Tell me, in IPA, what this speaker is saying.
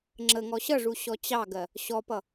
ŋ͡ǁəŋɔ ɕʌʐu ɕɔt͡ɕɑɡɜ | ɕɔpʌ

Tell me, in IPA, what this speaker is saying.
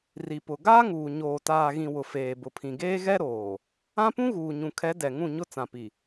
ri˨pʊ˨ ɡaː˦ŋuː˨ ɲoː˨taː˨ɣĩ˨ wʊ˨feː˨ bʊ˨pʰĩ˨ ɡeː˦ ɣɛ˦ɾoː˨ | ã˦pũ˦ ɣuː˨ɲũ˨kʰɛ˨˦ dɛ˨ ŋũ˦˨ɲʊ˦t͡sã˨pi˨

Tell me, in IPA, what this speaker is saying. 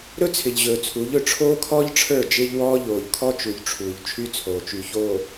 ɾɵ˦t͡sʰɪ˨ʎʑɵː˨t͡sʰu˨˦ʎ ɵ˨ʈ͡ʂʰoː˦kʰɔː˦ʎʈ͡ʂʰə˞˦˨ d͡ʒɪː˦ʎwɔː˦ ʎoː˨ʎkʰɔ˦t͡ʃu˨ʎʈ͡ʂʰuː˨ʎ t͡ʃʰy˦t͡sʰoː˨t͡ʃy˨ çoː˨

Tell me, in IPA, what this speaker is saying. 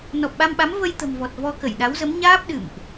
nɔ˨˩p̚ɓa˧mɓa˨˦m və˧jt̪ə̤˨˩mvɔ˨˩t̚ vɔ˧kə˧˩jɗa˨˦wzə˨˦m ɲaː˦˥p̚ɗɨ̰˧˨mʔ

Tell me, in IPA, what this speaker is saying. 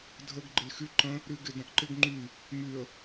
dʱəɡ ɡ͡ǃɪlxy ǃə̃ | ɾyɡɪdɐ̃ʔǃɪɡ ŋ͡ǃy | myə̯

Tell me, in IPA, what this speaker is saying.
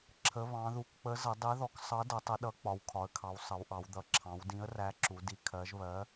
ǁʰə˩˧βɑ̃˩˧ðu˩˧k k͡pə˨˥zə˩˧ dˤi˨˥ðɔ˨˥k sˤʌ˨˥dʌ˩˧ tˤə˨˥ɗʌ˨˥ k͡pɒ˩˧wkʰɒ˩˧ə̯kʰɑ˩˧w sˤʌ˩˧wʔɑ˩˧w d̪ʌ˩˧ ǁʰɑ̃˩˧wdĩ˨˥ə̯ræ˨˥ǁu˩˧ di˨˥kʰɜ˨˥ʒ βɜ˨˥

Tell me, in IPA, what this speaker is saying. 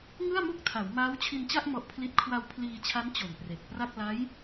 ŋɯ˥˩a̯mu˥˩k̚tʰa˩˦w maː˦˥wt͡ɕʰi˧nt͡ɕa˥˩ʔ mɔ˦˥ʔpʰli˥˩t̚ kʰwa˧wpʰliː˧t͡ɕʰa˦˥n t͡ɕo˨˩npre˨˩k̚pra˥˩k̚ la˦˥j

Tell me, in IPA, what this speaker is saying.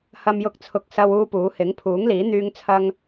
hɐ˨mjʊ˨k̚t͡sʰʊ˨k̚ sɐ˥wuː˥puː˨˥ hɪ˨˥ŋpʰuː˨˥ŋliː˨˥ n̪yː˧ŋt͡sʰɐ˧ŋ

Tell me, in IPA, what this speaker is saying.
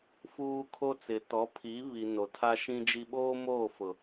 fuː˦kʰo˦ t͡sɪ˨tɔ˨˦pʰi˨˦βi˨ no˨tʰa˦ʃĩ˦d͡ʒi˦ ɓoː˦moː˦˨ fʊ˨

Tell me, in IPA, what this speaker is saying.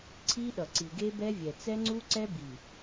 ǀʰi˦ɗʌ˨ǀi˨ ɡe˦bɛ˦ vʲɛ˨ t͡sɛ˦ŋ͡ǀu˦ǀɛ˦ bi˨

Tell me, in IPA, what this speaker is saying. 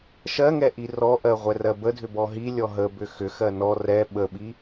ʃɜŋɛʔi rɔʔɜ ʁʷɛrɜbədʱʏ bɔɦi lʲɔɦə bʏxʏxɜ nɔ rɛ ɓəɓi

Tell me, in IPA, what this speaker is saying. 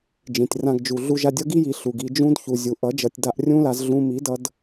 d͡ʒĩ˨tʲrã˧ɡd͡ʒu˨ ɮu˧ ʒa˧dʲʌ˦ɡi˦ji˨ ɬu˨ɡi˧ d͡ʒũ˦dçu˨zʲu˨ ʔʌ˨˦d͡ʒʌ˨tʲ da˧ʔrʲũ˦la˧z ɮũ˧mi˨˦dʌ˧d

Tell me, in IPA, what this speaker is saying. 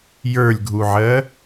jə˞lʲɡʱuʕɜ

